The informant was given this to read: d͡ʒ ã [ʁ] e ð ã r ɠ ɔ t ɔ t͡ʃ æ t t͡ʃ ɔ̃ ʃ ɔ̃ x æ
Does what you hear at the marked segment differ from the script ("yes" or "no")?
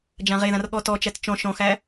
no